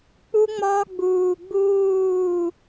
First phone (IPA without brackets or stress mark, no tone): k͡p